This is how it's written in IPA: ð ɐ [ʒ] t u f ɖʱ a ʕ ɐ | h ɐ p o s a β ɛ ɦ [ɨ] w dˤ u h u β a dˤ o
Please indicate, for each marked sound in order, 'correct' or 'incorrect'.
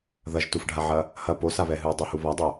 correct, correct

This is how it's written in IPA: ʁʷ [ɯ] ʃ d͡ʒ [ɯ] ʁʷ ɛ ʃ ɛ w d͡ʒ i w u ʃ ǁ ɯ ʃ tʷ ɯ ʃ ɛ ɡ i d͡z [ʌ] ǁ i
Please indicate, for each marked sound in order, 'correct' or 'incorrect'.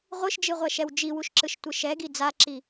correct, correct, incorrect

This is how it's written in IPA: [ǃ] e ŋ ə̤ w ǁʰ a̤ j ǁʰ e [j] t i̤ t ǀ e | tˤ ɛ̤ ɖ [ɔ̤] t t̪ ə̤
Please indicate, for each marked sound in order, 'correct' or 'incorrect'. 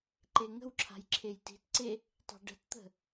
correct, correct, incorrect

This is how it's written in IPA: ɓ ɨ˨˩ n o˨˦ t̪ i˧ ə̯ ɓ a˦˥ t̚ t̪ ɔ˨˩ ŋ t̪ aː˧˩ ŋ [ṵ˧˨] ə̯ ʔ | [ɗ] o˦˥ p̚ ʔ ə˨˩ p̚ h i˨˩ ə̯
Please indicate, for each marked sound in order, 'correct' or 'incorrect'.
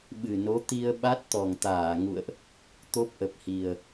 correct, incorrect

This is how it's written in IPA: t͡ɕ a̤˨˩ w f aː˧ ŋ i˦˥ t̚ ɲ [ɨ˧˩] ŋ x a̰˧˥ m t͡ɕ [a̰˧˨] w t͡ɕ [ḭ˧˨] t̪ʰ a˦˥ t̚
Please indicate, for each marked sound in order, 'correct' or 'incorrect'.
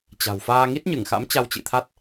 correct, incorrect, correct

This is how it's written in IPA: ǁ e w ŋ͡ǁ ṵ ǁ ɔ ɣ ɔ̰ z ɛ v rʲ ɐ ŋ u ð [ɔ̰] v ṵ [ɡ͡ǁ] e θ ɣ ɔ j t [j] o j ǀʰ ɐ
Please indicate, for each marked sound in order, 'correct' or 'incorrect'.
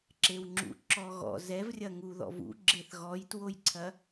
correct, correct, incorrect

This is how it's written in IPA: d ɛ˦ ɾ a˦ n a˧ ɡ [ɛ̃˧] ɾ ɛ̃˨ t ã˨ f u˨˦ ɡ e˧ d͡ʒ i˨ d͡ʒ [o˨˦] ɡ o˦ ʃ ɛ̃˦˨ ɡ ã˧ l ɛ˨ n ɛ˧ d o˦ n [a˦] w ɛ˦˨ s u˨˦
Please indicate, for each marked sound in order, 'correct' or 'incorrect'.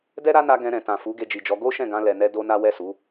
correct, incorrect, correct

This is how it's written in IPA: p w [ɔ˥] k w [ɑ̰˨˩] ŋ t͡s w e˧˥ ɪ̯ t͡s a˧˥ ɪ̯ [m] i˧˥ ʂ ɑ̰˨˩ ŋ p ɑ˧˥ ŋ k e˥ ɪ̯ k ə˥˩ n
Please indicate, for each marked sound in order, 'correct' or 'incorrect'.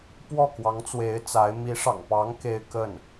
incorrect, incorrect, correct

